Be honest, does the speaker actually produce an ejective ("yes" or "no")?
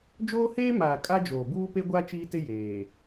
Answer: yes